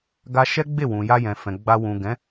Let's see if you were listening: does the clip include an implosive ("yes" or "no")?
no